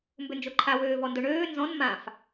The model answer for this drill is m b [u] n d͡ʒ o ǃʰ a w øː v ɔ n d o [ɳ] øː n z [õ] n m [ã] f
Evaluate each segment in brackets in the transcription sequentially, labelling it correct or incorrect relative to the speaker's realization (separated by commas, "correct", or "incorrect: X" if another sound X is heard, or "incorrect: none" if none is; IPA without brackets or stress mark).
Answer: incorrect: ʏ, correct, incorrect: ɔ̃, correct